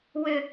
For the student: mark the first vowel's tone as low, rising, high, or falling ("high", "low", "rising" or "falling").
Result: high